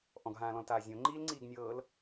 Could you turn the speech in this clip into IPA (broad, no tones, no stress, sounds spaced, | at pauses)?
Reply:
ʔ ɔ̃ ɡ ɦ ãː l ɔ̃ l t aː zʲ õ ŋ͡ǃ iː l ŋ͡ǀ iː ɡ nʲ ɤː l